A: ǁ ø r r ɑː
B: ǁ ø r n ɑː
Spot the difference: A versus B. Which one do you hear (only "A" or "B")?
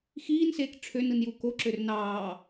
B